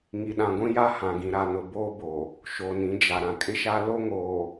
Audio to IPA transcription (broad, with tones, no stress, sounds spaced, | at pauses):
ŋ i˨ ɗ ã˨ ɡʷ ĩ˦ j a˦ h ã˨ ɡ ĩ˨ ɾ a˨ n ʊ˨ b oː˦ b o˨ | ʃ o˨ n ĩ˨˦ d͡ʒ a˨ ɾ ã˨ kʼ ɪ˦ ʃ a˦ l o˦ ŋ oː˨